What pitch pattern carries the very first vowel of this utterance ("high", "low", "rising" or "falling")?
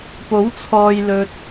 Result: rising